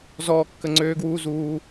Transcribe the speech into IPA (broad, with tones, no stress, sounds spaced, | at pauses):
z ɔː˦ kː ə˦˨ ŋ͡ǀ øː˦ ɡ w uː˦ z uː˧